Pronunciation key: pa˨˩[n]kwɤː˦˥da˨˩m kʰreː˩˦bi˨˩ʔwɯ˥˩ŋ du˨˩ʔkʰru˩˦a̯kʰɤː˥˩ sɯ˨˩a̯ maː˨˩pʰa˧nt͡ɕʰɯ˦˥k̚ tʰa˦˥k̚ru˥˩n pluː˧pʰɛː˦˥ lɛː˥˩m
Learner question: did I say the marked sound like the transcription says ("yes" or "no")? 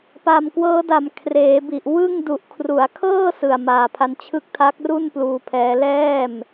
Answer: no